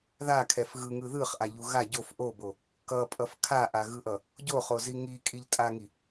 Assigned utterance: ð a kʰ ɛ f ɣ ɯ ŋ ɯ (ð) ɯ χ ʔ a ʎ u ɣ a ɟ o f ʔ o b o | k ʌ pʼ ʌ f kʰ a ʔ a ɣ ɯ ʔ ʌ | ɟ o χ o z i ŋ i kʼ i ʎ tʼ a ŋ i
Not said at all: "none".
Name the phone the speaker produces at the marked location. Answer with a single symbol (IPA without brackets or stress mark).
ð